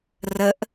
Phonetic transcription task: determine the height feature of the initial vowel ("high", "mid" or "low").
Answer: mid